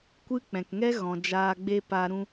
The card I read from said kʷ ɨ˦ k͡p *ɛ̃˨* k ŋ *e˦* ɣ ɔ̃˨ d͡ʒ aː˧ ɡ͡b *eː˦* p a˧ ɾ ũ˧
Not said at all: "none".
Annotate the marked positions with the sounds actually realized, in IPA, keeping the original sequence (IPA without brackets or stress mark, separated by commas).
ɛ̃˨, ɛ˦, e˦